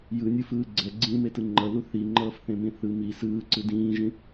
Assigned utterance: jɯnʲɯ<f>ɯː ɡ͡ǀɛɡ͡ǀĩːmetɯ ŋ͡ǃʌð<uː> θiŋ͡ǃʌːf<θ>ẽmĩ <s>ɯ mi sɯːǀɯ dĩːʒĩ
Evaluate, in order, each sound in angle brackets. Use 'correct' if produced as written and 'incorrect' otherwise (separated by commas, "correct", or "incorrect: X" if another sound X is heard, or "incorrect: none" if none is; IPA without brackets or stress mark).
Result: correct, incorrect: u, correct, incorrect: θ